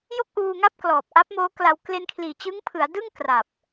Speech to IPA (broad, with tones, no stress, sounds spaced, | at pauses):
j o˥˩ k̚ ʔ uː˧ ŋ a˥˩ p̚ k l ɔː˨˩ p̚ ʔ a˦˥ p̚ m oː˦˥ k l a˧ w k l e˧ n kʰ l iː˨˩ t͡ɕ ɯ˦˥ ŋ pʰ ɯ˩˦ a̯ d ɯ˥˩ ŋ k r a˨˩ p̚